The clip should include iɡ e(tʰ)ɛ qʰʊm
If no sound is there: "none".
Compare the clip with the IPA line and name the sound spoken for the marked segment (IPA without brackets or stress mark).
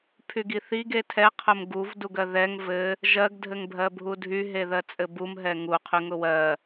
tʰ